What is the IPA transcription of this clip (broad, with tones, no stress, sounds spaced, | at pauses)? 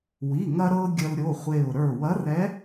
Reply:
w i˩˧˩ ŋ ɐ˧ ɾ ɤ˧ ɡʲ ə˧ l ɾʲ o˩˧˩ χʷ e˧˩ ʊ̯ ɾ ə˞˧˩ w ɐ˧˥ r ɛ˧˥